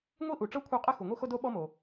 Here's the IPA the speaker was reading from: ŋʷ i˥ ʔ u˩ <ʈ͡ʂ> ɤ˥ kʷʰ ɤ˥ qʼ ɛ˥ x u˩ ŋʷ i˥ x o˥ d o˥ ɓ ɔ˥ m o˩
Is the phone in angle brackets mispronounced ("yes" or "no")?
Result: no